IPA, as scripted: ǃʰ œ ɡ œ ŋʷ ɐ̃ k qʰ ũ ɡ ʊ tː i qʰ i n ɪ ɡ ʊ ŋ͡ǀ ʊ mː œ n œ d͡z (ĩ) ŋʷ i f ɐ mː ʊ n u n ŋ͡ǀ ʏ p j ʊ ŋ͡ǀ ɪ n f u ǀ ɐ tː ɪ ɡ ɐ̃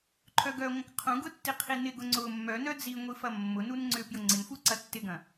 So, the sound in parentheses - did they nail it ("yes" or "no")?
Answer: no